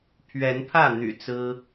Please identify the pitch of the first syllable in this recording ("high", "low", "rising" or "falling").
rising